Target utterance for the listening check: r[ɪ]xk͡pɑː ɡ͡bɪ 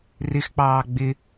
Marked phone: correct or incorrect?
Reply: correct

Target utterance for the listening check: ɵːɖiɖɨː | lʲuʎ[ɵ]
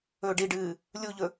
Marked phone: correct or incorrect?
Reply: correct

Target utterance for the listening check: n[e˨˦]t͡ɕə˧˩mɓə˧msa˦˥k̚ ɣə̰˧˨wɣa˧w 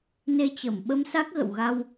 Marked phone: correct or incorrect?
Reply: incorrect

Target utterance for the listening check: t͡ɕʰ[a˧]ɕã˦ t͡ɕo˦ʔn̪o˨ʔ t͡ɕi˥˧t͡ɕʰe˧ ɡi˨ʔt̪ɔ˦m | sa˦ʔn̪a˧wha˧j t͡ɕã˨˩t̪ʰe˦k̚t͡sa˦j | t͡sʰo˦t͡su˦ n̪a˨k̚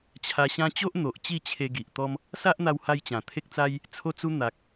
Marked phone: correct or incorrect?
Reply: correct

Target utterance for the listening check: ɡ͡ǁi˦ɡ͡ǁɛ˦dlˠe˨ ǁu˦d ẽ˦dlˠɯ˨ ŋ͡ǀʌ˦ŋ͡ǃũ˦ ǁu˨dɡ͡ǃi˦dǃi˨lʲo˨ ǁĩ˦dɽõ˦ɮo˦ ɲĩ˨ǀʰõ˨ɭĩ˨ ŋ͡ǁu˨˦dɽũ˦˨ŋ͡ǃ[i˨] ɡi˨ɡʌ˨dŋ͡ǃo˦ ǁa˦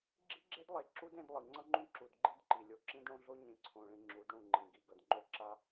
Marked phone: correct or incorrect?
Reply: incorrect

